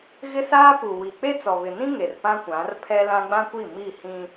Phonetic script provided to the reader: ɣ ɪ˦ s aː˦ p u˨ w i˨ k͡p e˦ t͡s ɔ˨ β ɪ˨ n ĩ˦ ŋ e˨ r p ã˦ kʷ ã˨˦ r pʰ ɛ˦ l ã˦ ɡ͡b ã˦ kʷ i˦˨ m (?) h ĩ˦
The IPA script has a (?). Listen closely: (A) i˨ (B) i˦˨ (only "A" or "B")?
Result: B